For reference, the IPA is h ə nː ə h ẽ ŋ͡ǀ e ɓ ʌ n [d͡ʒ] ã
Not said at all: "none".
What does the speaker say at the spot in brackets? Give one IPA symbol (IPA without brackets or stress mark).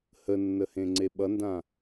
d